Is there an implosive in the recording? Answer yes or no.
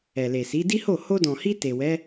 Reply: no